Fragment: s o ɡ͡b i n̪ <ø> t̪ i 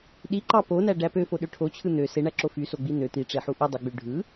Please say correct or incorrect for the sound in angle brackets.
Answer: correct